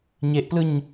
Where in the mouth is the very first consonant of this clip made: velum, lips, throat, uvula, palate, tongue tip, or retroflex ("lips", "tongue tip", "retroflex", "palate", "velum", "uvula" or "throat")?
palate